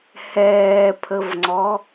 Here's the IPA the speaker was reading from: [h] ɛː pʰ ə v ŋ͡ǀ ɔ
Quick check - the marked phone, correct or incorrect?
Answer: correct